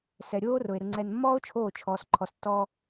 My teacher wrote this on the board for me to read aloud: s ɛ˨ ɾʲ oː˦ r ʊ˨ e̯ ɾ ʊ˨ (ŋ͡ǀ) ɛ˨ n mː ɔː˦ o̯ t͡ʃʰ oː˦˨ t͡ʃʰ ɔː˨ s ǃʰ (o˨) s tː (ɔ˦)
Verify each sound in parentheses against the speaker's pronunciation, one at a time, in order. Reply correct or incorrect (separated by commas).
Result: correct, incorrect, incorrect